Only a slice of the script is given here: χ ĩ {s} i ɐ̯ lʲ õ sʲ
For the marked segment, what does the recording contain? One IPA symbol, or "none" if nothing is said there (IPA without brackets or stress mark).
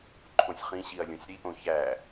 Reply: ɕ